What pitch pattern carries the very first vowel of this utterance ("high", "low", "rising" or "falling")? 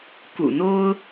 low